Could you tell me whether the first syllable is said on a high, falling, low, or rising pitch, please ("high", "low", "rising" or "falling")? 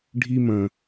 high